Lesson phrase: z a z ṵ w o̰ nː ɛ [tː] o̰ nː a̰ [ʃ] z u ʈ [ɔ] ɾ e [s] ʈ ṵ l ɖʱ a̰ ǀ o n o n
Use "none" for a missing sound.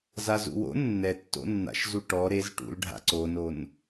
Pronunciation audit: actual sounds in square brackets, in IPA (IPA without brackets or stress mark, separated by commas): tː, ʃ, ɔ, z